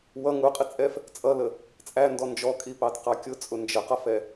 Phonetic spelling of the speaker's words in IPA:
w ʌ ŋ u qʼ i t͡sʼ ɛ f | t͡sʼ ʌ l ə | t͡sʼ æ n d ɔ n d͡ʒ ɔ kʼ i p ɑ t q ɑ kʲ ʊ t͡sʼ ʊ n d͡ʒ ə q ʌ f ɛ

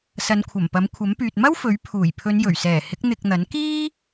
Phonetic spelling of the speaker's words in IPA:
s ɐ˨˧ n kʷʰ ɐ˨˩ m p ɐ˨˥ m kʷʰ ɐ˨˥ m p yː˨ t̚ m ɐ˥ w f ɵ˨˥ ɥ pʰ uː˨˩ j pʰ ɵ˨˧ n j ɵ˨˩ ɥ s ɛː˨˩ h ɪ˨˥ k̚ n̪ ɪ˧ k̚ n̪ ɐ˨˥ n k iː˥

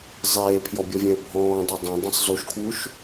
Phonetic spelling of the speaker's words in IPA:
zˤ eː pʰ j ɔ bʲ ɔ vʲ ẽ ə̯ bʱ ɔ̃ː dˤ e dˤ œ̃ dˤ ẽ sˤ z u ʃ kʰ w u ʃ

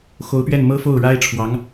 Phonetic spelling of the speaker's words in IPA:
x o˧˥ ʊ̯ p ɥ ɛ˥˩ n m ɤ˥ f o˥˩ ʊ̯ ɻ a˥ ɪ̯ ʈ͡ʂʰ w ɑ˧˥ ŋ

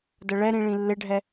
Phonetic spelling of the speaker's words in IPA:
d ə ɭ ɛ ɾ ĩ ɭ ĩ lː ɪ ɖʱ ɛ

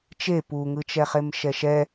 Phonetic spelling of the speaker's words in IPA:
t͡ʃ e p u ŋ ɯ t͡ʃ ɛ χ e m ʃ ɛ ʃ ɛ

